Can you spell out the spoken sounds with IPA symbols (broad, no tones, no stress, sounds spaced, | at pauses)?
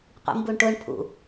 qʷ ḭ m b u ɳ ʈ ʊ ɳ pʰ ṵ